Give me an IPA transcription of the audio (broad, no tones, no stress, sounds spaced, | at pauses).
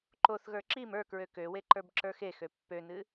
ǃ o θ ɣ ə˞ ǁ i m ə˞ k ɹ ø k ø w e ǃ ə˞ b ǁ ə˞ x e x ø pː ø n ɨ